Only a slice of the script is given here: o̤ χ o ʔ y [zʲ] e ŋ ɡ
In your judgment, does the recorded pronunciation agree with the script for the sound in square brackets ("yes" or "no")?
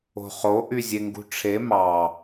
yes